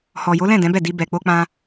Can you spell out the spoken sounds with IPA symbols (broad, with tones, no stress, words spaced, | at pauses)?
hɔ˨jo˨˦lɛ̃˦˨ dɛ̃˨˦bɛ˦˨di˧ bɛ˨k͡po˧k͡pã˧